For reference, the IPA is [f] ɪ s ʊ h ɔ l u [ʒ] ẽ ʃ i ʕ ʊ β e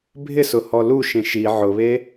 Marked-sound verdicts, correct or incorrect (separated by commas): incorrect, incorrect